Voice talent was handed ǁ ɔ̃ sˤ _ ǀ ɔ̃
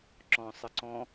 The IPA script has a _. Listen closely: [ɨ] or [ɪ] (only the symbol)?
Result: ɪ